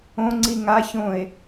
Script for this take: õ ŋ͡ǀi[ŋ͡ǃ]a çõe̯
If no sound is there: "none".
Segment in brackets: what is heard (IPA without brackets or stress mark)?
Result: ŋ